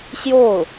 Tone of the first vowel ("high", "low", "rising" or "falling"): falling